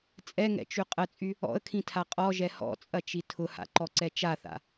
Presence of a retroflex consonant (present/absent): absent